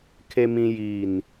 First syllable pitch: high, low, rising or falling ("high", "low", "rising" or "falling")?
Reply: low